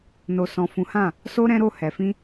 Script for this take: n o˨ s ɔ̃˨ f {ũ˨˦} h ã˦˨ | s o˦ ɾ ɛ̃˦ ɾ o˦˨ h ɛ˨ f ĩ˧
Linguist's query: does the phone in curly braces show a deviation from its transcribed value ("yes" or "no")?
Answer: no